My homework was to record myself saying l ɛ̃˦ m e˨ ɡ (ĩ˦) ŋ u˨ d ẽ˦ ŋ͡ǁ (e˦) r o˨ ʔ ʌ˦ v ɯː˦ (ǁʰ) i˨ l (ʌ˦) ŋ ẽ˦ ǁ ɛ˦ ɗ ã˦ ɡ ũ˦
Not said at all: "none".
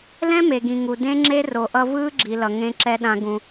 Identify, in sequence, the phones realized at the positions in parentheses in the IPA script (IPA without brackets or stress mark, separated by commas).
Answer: ĩ˨, e˦, ɡ͡ǁ, ʌ˨